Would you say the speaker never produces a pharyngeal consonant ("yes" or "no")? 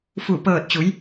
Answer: yes